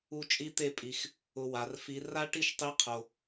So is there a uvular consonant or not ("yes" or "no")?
yes